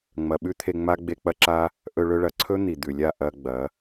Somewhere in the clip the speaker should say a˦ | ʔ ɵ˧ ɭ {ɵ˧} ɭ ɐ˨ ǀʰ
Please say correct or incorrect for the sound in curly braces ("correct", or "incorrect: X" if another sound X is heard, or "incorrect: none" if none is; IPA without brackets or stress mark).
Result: correct